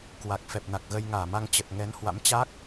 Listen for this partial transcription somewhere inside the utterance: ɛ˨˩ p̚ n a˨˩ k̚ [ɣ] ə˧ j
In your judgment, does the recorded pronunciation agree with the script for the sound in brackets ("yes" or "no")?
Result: yes